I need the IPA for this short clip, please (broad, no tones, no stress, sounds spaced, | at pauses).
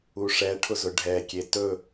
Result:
u ʂ ɛ ʈʰ ʊ z ʊ ɖʱ ɛ kʲ e t ɵ